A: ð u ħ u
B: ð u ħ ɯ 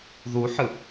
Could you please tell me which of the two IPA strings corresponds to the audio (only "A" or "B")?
B